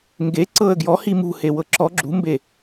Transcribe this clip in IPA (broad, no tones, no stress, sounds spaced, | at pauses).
ŋ ɡ e ǀ ɤ ə̯ ɡ j ɔ h i m ṳ h e w ɤ ǁ ɔ ɡ͡ǁ ṳ m b e